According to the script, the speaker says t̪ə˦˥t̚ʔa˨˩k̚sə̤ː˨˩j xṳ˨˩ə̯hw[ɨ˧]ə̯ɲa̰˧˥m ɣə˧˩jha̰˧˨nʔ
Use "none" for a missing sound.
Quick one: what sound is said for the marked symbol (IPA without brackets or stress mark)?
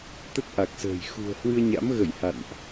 ɨ˧